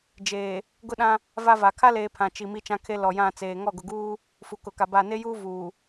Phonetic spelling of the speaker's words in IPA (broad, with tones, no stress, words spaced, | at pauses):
d͡ʒeː˨ | ɡʊ˦ɗã˦ | va˦va˨ kʰa˦leː˨ pʰã˨t͡ʃi˨ mi˦t͡ʃã˦kʰe˦ lɔ˨jã˦˨t͡seː˨ ŋɔ˦˨ɡʊ˨ɡuː˦ | fu˨kʊ˨ka˨ba˦˨ ne˦juː˦ vuː˨